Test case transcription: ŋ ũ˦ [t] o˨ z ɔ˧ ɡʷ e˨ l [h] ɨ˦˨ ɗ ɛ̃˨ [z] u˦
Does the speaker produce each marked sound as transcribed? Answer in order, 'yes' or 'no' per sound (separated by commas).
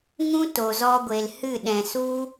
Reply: yes, yes, no